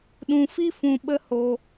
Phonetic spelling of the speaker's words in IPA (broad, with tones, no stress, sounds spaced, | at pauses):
ɗ ũ˧ f i˦ f ũ˧ ɓ ə˦ h o˧